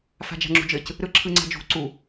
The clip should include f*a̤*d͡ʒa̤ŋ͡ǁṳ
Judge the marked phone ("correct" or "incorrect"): correct